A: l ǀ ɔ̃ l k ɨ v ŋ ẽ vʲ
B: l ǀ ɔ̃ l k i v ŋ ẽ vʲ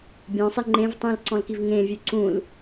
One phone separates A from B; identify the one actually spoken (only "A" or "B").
B